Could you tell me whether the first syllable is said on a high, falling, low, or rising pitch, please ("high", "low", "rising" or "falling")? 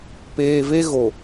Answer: low